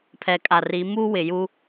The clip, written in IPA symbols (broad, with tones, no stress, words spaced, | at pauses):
pʰɛ˨kʼa˨ri˨˦ mu˦wɪ˨ju˦